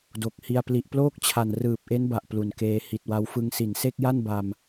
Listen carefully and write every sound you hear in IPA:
do˨˩k̚hi˧a̯ pli˨˩ʔploː˥˩k̚t͡ɕʰa˨˩n rɯː˨˩p̚ʔe˦˥nba˨˩ʔ plu˨˩nkeː˧ hi˨˩t̚wa˧w fɯ˧ŋsi˨˩nse˥˩k̚ja˥˩n ba˧m

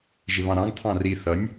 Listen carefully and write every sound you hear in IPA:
ʒɪβɑ̃ɾɑ̃ɡ t̪ʰɑ̃ri θʌnʲ

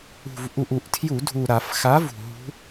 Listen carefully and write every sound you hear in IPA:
ṳ˨˩v ʔu˨˩ʔu˨˩ʔtʰju˧˩˧ dʱu˨˩ɾa˧˩˧f xa˨˥vṳ˨˩ ɦṳ˦˥

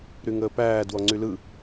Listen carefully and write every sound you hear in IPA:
ɾyŋəːpæː dwɔŋ͡ǀylɯ

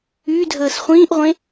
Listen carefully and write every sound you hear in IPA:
ydʱəːs χʷĩːʔʁʷẽ

